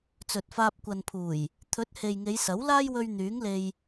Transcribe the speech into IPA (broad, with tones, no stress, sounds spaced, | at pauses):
t͡s ɵ˨ t̚ f aː˧ p̚ kʷ ɐ˨ n pʰ uː˨˩ j | t̪ʰ ɵ˨˥ t̚ h e˨ j ŋ e˨˧ j s ɐ˨˥ w l aː˥ j w ɵ˧ ɥ n̪ yː˨˥ ŋ l e˧ j